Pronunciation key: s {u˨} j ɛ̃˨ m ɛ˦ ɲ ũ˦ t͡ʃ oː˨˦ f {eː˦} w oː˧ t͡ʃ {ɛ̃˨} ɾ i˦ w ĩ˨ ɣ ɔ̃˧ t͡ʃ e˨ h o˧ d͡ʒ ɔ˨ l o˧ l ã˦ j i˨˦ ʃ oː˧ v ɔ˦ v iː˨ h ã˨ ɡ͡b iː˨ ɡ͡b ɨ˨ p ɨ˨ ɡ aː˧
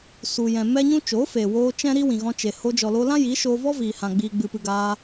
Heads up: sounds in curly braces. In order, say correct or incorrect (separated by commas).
correct, incorrect, incorrect